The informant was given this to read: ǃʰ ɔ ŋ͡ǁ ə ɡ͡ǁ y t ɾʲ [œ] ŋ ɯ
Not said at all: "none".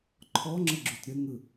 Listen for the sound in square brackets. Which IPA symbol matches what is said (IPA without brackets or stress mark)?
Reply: ə